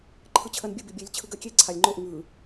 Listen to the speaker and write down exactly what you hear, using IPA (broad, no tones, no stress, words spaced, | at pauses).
ǃʰɯt͡ɕʰɜnbʲɯ bibʲelʲ t͡ɕʰɯɡɜkʲe ǀʰalʲŋ͡ǃoʔ ŋɯ